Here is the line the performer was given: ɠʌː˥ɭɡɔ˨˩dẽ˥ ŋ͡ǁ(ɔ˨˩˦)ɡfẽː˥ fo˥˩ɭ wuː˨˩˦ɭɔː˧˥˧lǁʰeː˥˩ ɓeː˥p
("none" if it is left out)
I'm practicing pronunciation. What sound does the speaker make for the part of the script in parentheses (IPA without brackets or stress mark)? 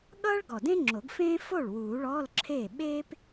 o˨˩˦